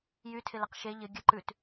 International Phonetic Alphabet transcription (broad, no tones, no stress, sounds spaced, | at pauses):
j y tʰ ɪ l ə q ʃ e ʎ ɪ ɡʲ ə ǃ ʉ t